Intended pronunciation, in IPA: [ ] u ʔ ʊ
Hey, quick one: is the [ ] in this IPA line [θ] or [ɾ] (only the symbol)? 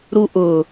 ɾ